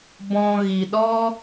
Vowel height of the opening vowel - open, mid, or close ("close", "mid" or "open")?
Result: mid